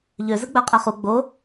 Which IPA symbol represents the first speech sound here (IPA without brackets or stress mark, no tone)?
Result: ʎ